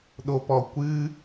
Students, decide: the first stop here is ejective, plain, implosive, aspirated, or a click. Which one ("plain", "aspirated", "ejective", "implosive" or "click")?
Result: implosive